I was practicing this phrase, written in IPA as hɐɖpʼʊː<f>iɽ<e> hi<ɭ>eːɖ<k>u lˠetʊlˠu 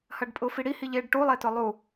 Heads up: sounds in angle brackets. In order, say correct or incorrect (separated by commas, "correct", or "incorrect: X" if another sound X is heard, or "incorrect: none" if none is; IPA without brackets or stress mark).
correct, incorrect: i, incorrect: ʎ, incorrect: ʈ